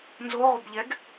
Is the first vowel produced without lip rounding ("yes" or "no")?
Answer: no